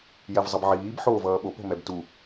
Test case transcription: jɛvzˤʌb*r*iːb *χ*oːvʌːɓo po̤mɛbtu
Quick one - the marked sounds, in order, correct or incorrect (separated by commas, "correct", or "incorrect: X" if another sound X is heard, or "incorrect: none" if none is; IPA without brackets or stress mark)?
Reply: incorrect: ʕ, incorrect: ħ